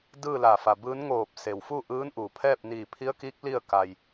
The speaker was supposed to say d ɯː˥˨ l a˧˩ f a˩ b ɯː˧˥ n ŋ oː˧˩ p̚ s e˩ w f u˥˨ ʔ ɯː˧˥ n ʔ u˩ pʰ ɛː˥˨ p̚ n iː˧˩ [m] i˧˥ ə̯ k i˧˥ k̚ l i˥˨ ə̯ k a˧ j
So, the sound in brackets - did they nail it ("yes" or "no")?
no